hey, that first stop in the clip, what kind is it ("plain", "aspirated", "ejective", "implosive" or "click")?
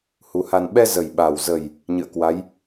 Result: implosive